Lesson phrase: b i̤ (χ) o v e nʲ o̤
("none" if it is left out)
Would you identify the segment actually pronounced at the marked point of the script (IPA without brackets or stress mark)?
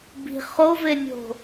χ